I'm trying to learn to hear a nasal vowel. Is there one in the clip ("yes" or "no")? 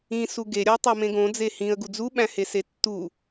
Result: yes